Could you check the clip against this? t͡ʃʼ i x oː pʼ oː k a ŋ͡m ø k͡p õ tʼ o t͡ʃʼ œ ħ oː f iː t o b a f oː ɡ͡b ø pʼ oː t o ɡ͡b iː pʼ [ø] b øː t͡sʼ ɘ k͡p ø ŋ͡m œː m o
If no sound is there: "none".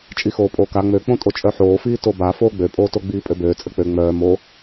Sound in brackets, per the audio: ø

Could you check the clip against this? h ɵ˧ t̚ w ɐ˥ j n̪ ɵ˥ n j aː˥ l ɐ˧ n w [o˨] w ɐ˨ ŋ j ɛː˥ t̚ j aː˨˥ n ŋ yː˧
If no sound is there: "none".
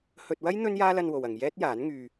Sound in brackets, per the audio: o˨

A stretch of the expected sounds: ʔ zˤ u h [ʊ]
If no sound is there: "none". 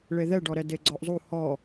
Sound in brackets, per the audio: ɔ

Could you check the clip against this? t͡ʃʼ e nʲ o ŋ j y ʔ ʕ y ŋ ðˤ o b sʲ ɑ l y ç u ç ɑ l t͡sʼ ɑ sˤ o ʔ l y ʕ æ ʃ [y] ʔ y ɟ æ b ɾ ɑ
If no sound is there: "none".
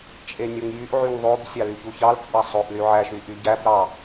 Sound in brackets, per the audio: y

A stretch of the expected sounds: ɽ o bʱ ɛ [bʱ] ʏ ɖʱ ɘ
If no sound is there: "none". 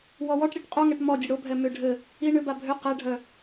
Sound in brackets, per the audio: m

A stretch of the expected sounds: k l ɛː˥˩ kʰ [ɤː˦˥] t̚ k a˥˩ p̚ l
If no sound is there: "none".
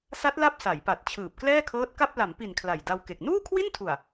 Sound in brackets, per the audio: ɤː˦˥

